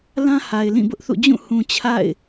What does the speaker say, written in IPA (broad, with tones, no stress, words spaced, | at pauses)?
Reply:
lã˦ha˨ɪ̯ lĩ˦˨bʊ˦ʔθṵ˦˨ d͡ʑũ˦˨hũ˨ t͡ɕʰa̰˦˨ɪ̯